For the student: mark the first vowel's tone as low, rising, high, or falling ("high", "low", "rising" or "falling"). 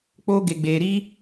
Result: high